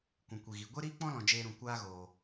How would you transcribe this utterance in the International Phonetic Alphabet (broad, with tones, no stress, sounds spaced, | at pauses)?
kʷ ũ˨ kʷ i˨ ɣ i˨ ɡʷ e˦ ɾ iː˦ k͡p ɔ̃˦ l ɔ̃˨ d͡ʒ eː˧ ɾ ũ˨ kʷ aː˦ ɣ oː˨